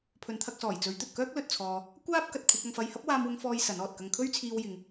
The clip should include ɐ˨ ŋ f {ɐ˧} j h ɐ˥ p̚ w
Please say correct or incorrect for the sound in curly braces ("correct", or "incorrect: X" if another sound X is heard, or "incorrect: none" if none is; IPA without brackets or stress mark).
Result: correct